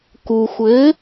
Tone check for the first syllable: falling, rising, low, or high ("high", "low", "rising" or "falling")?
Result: low